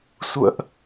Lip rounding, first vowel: rounded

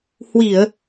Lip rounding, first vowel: unrounded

